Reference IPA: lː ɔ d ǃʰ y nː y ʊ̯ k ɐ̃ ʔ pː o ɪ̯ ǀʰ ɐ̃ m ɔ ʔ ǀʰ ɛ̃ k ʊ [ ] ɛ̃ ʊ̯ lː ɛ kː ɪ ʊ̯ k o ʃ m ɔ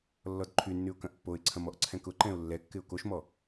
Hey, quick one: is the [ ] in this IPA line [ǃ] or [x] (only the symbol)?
ǃ